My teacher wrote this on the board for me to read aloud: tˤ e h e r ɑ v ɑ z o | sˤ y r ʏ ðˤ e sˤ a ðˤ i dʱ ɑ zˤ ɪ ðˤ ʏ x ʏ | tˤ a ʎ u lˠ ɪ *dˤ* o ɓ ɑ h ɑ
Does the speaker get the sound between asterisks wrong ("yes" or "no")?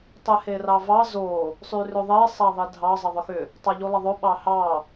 yes